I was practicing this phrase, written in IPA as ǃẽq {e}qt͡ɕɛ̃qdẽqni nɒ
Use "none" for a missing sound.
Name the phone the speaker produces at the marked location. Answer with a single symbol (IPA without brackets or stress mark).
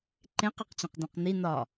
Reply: e